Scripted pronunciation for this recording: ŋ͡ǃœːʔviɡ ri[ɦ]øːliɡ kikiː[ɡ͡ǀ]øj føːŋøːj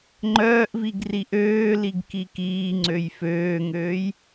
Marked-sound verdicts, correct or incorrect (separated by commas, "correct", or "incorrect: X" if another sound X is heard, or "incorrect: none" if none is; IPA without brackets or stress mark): incorrect: ʔ, incorrect: ŋ͡ǀ